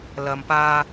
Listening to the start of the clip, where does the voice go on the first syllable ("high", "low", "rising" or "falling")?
low